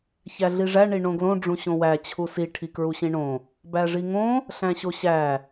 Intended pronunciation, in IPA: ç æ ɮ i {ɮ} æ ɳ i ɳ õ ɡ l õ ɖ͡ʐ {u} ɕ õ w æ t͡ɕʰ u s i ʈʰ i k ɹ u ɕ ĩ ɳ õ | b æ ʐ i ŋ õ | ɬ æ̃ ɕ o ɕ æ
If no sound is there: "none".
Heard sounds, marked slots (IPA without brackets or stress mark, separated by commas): ʐ, ũ